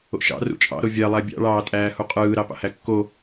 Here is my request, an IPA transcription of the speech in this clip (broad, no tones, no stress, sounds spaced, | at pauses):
o̰ ʃ ɑ̰ r ṵ t͡ʃʼ ɑ̰ ɾ o vʲ æ lˠ æ bʲ ɑ̰ ɭ ɑː tʼ æː h u qʼ ɯː ɾ ɑ p ɑ̰ h æ kː o